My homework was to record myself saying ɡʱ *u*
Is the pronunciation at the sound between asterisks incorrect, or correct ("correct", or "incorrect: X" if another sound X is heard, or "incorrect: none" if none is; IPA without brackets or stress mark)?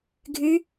incorrect: ʉ